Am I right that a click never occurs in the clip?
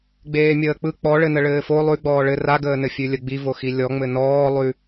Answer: yes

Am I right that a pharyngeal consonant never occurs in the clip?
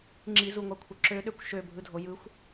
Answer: yes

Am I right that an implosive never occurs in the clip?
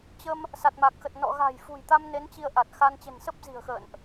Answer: yes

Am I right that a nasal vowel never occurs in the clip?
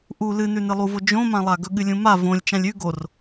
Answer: no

